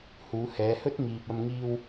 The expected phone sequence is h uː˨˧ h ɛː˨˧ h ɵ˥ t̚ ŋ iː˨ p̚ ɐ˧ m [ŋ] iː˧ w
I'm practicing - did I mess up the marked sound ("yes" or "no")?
no